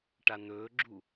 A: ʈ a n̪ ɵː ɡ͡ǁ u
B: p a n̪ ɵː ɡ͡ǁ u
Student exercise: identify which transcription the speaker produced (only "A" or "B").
A